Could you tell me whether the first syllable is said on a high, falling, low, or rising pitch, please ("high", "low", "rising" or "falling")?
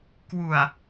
low